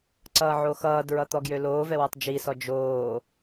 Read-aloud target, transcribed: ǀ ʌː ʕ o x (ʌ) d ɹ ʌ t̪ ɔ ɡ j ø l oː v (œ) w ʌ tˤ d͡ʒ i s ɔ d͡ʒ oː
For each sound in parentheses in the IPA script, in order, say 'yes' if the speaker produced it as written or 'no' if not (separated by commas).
no, no